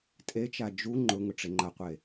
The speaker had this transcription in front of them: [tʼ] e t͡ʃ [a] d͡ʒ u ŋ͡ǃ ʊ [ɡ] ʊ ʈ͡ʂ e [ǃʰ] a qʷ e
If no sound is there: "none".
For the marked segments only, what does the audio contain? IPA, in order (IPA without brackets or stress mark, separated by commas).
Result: tʼ, a, ŋ, ŋ͡ǃ